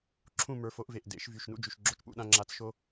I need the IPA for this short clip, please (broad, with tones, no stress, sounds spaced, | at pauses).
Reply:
ǁʰ ũ˥˨ m ə˞˩˥ f o˩˥ ʔ v e˨˩ ʔ d ḛ˨˩˦ ʃ v y˨˩ ʃ n ṵ˥˨ d͡ʒ y˨˩ ʃ ɡ͡ǁ o˥ t͡ʃ p ṵ˥ ɗ ã˥ ŋ͡ǁ a˧˥ t͡s ʃ o˥